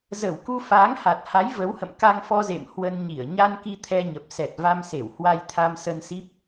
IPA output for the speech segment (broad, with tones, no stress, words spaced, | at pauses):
zə˧˩wku˧ faː˨˦ŋha˨˩t̚ha˨˦j və˨˦whə̰˧˨m ka˧ŋfɔ˧zḛ˧˨m hwə˧n ɲi˧˩ə̯ ɲa˧nki˧ t̪ʰɛ˧ɲə˨˩p̚sɛ˨˩t̚ va˧mse˧˩w hwa˧jt̪ʰa˧msə˧nsi˦˥p̚